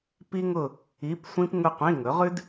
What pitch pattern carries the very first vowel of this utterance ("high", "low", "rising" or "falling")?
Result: high